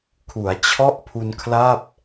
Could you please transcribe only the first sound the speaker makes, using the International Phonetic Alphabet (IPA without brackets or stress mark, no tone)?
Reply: kʰ